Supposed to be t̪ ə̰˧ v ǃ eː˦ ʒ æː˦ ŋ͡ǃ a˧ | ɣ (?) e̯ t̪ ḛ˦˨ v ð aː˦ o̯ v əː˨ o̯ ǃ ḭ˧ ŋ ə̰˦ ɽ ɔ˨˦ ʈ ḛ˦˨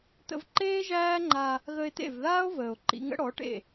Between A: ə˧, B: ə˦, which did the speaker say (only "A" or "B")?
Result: A